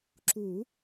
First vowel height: high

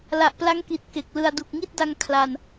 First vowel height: low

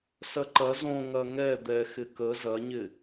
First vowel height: low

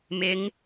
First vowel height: high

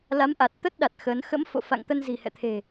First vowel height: low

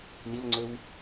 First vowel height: high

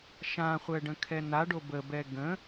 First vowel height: low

